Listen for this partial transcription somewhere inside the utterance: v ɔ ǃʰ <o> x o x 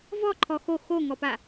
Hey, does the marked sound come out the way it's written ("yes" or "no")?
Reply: no